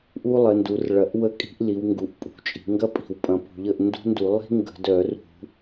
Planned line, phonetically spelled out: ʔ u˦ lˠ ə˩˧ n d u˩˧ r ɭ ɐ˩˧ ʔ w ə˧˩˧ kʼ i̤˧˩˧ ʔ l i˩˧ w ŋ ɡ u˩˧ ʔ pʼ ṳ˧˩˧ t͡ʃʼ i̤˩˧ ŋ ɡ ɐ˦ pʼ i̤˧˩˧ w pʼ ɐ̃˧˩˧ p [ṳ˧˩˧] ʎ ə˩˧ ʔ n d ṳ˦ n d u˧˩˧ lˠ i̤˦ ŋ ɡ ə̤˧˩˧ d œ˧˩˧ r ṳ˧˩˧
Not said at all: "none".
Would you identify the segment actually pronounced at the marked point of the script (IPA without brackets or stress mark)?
ṳ˧˩˧